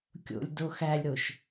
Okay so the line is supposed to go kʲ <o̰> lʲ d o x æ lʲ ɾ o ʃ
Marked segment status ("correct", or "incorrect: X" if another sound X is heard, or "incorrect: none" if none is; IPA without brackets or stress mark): correct